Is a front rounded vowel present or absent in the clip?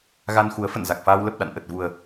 absent